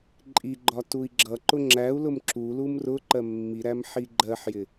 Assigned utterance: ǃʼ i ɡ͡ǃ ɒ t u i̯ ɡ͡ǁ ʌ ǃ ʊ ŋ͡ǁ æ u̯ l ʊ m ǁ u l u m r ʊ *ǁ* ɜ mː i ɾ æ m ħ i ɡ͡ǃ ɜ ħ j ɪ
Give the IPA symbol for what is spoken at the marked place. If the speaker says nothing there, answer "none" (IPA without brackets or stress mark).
ǃ